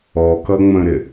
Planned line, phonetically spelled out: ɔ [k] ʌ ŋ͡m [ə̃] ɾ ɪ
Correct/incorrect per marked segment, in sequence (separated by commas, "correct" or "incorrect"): correct, correct